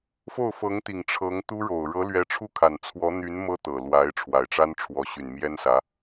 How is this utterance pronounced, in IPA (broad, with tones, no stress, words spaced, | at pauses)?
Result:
fo˥˩ʊ̯fɤ˧˥ŋt̪i˨˩ŋ ʈ͡ʂʰɤ˧˥ŋt̪u˥ɻo˨˩ʊ̯ ɻɤ˧˥lɥɛ˧˥ʈ͡ʂʰu˥˩ kʰa˨˩nt͡sʰwɔ˧˥n̪y˧˥n mɤ˥t̪ɤ˨˩ lwa˧˥ɪ̯ ʈ͡ʂʰwa˨˩ɪ̯ʈ͡ʂa˥nʈ͡ʂʰwɔ˧˥ ɕy˨˩nmjɛ˥nsä˧˥